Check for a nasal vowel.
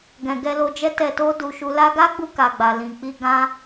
present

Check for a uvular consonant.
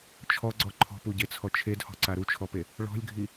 absent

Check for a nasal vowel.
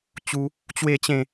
present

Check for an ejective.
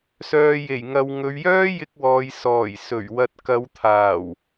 absent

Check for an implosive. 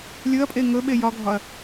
present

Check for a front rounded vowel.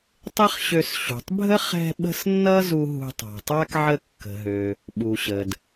present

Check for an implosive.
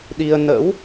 present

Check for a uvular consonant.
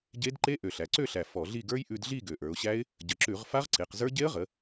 present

